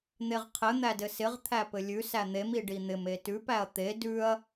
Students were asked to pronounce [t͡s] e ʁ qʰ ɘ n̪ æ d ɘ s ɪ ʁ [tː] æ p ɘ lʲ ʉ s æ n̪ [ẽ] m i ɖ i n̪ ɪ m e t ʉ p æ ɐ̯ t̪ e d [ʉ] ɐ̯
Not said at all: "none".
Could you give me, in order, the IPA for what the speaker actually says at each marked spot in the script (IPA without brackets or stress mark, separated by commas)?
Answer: n̪, t̪ʰ, e, ʉ